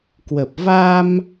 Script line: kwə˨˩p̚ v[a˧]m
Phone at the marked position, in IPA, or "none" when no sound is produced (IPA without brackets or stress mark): a˧